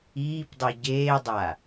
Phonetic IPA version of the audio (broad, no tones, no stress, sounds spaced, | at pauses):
iː p dˤ i ɟ eː dˤ a